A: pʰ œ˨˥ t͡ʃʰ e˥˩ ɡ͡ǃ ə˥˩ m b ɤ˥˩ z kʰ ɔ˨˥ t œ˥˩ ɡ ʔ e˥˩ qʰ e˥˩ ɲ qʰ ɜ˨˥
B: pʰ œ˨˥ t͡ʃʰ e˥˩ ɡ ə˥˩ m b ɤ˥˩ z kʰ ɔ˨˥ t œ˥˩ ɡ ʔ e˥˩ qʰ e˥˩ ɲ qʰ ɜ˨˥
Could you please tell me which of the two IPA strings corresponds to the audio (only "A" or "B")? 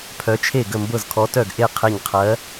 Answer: B